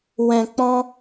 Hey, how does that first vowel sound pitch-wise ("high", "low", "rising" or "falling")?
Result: low